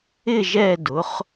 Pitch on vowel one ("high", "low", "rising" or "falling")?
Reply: falling